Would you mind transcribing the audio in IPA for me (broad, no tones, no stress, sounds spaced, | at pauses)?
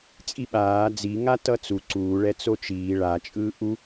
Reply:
t͡sʼ i ɓ aː d͡z i ŋ a t ʌ t͡s u ǀ uː ɭ ɛ t͡s o t͡ʃ iː ɭ a t͡ʃʼ ɯː ʔ u